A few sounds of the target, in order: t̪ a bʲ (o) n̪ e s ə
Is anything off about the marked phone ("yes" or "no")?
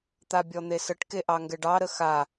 yes